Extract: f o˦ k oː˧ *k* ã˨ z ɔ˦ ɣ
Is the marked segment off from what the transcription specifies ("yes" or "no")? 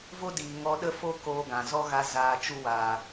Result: yes